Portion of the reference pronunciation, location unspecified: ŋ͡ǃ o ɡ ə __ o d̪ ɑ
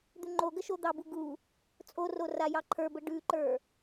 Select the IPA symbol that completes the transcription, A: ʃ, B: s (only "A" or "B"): A